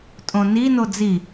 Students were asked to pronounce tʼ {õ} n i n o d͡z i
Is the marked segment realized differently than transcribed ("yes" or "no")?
no